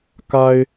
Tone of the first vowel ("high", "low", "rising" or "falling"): high